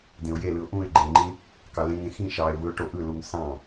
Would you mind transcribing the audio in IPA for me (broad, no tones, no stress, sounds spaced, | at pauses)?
d ẽ ʊ̯ j e l ɯ ʊ̯ ʔ ũ ɪ̯ ɡ͡ǃ e ŋ͡ǃ ĩ | k ɑ l ẽ ŋ ẽ x ĩ ʃ ɑ ɪ̯ v ɯ ʊ̯ ʈ o ʔ ɯ l u ŋ s ɑ̃